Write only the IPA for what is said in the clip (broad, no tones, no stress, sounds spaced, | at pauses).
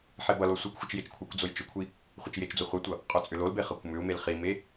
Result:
ħ e b ʌ l o sʷ i kʷ xʷ ɪ t͡ʃ j e t͡ʃ kʷʰ e kʷ d͡z o j t͡ʃ ʏ kʷʰ i | χʷ ɪ t͡ʃ j e t͡ʃ d͡z o χʷ ɤ tʷ ʌ | qʼ o t͡sʼ ʏ l o l b e χ ɤ kʷ m ʏ u̯ m e l χ i m e